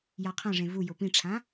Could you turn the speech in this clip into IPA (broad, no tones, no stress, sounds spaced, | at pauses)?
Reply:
j a qʰ ã ʐ ẽ v u j o p ĩ ʈ͡ʂʰ ã